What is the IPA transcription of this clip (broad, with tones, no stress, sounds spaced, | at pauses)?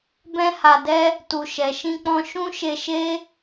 b ɛ̃˦ h a˧ d ɛ˦ | t u˨ ʃ ɛ˨ ʃ ĩ˧ k͡p ɔ̃˧ ʃ ũ˦ ʃ e˧ ʃ e˦